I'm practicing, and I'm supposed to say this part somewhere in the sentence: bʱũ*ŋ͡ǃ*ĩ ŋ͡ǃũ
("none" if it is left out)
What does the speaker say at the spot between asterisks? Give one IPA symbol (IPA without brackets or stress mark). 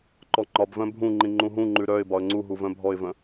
ŋ͡ǃ